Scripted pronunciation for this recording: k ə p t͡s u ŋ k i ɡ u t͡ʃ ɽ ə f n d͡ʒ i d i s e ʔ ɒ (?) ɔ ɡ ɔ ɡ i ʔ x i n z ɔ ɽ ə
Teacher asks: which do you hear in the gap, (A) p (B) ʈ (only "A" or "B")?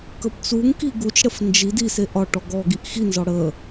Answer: B